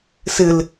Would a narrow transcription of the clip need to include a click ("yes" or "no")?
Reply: no